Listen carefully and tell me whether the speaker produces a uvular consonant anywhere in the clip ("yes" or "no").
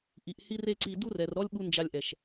no